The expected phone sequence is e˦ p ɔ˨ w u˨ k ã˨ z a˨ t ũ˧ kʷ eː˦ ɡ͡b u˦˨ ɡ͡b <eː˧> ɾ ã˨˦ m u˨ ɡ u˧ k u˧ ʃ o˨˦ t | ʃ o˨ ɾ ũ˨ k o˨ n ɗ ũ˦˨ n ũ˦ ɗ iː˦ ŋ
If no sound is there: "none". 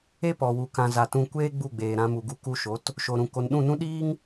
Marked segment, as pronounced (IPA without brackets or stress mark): eː˨